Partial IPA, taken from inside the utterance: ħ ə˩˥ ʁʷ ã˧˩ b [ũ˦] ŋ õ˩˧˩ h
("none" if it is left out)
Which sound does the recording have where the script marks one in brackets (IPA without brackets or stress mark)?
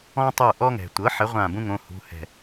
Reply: ũ˦